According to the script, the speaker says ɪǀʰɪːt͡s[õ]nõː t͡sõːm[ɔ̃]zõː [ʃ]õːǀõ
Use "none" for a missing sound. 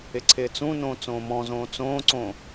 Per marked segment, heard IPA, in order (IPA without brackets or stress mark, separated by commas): ũ, ɔ̃, t͡s